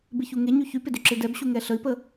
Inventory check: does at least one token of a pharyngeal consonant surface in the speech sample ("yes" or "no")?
no